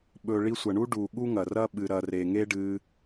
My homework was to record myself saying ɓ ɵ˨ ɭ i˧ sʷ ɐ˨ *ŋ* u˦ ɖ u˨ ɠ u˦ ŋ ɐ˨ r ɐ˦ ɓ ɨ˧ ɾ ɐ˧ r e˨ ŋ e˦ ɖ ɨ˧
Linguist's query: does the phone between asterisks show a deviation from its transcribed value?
yes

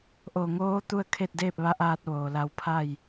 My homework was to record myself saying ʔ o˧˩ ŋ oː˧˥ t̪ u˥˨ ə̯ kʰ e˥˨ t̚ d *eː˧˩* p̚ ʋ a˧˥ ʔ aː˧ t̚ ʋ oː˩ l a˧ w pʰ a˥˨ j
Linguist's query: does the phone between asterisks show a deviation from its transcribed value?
yes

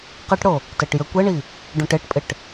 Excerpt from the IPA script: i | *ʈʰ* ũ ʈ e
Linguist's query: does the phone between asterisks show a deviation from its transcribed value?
yes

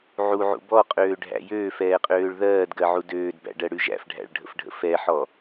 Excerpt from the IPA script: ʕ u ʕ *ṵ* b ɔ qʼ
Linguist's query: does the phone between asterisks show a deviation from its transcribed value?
no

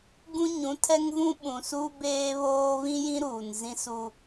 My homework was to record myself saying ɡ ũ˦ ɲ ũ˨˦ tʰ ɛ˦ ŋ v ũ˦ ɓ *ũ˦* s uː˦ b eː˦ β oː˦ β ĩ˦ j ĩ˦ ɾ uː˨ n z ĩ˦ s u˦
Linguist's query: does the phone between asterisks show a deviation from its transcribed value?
yes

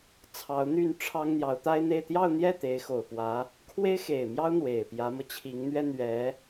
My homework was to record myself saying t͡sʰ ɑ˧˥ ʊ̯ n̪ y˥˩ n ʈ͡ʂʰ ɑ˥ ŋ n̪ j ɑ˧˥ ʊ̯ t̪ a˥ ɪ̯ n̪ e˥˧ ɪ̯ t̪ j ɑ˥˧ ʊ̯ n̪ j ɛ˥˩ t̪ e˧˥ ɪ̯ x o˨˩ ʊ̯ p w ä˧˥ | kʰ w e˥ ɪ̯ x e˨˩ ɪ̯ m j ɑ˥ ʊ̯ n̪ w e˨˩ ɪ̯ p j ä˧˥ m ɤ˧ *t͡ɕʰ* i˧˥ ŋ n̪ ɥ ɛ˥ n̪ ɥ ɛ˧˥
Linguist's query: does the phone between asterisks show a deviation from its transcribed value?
no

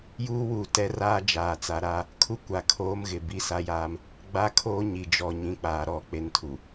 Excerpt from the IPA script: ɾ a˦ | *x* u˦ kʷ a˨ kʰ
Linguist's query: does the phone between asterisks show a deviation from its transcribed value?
yes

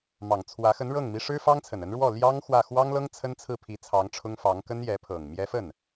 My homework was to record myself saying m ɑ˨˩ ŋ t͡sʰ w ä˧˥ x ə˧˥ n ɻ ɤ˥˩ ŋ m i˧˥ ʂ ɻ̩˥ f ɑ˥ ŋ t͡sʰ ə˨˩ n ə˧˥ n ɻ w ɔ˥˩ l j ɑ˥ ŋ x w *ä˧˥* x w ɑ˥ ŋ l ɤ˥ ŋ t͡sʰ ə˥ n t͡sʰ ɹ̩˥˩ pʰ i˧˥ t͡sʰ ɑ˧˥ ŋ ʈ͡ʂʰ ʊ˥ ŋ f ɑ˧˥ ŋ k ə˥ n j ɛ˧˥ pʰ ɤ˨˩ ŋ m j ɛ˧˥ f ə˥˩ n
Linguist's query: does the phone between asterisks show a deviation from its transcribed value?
yes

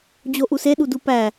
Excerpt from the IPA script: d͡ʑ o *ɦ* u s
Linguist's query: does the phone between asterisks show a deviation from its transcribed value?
yes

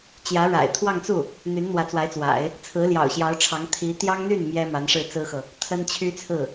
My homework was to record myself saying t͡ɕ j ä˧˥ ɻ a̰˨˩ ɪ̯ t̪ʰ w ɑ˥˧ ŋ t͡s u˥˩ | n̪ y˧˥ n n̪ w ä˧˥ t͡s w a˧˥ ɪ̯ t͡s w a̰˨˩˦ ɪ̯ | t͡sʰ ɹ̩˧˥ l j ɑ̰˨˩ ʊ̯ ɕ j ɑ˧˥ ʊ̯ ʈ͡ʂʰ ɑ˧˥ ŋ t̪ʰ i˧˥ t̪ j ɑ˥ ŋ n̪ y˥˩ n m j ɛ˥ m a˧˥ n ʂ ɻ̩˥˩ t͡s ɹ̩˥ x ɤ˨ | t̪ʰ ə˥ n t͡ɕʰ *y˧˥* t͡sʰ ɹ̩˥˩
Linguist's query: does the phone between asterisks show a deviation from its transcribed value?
yes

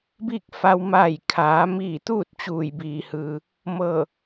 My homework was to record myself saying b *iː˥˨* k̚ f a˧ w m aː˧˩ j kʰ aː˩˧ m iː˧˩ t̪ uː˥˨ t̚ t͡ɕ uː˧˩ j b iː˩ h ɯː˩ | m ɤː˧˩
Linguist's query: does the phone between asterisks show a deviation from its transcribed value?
no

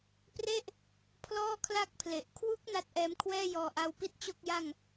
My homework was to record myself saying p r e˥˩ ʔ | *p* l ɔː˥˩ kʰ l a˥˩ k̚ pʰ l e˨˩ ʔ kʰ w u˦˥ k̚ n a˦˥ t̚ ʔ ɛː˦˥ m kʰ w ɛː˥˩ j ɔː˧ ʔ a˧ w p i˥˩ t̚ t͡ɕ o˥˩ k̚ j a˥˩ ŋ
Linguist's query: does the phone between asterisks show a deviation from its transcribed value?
yes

